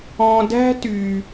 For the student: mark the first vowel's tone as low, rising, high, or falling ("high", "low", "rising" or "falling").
low